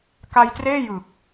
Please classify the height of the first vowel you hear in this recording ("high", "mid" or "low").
low